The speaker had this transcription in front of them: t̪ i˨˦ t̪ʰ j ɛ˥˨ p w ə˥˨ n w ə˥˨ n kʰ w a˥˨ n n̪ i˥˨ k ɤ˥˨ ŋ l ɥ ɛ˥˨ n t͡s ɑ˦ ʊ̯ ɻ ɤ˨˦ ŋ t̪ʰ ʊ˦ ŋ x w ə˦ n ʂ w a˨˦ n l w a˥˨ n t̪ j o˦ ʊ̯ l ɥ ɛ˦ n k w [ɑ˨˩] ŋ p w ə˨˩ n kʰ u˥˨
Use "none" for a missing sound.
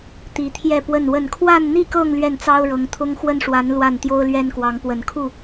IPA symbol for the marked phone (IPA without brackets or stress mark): ɑ˨˦